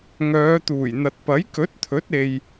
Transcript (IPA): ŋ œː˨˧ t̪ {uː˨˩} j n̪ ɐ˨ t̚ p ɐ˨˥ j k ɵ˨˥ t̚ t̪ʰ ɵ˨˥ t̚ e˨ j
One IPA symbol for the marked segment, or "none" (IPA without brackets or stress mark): uː˨˩